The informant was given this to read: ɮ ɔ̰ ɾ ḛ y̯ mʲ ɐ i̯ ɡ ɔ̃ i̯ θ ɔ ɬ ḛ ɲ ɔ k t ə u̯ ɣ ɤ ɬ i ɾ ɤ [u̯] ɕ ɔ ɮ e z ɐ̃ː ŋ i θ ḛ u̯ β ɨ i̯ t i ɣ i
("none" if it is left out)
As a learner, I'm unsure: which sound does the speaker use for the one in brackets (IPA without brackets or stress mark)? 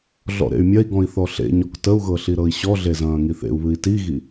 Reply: i̯